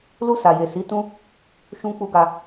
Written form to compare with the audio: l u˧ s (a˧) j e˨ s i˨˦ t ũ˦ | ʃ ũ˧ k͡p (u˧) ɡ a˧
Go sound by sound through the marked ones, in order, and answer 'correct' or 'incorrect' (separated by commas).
incorrect, correct